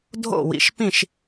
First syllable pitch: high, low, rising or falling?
falling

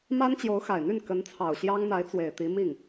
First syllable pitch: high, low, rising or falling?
high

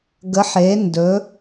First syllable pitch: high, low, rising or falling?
rising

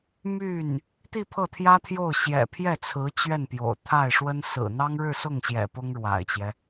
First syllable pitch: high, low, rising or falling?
falling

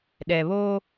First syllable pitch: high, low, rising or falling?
low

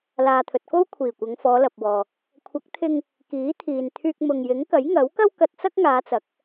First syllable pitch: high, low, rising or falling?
low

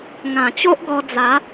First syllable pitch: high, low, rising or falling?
low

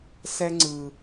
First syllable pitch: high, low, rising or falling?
high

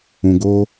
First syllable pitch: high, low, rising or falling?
low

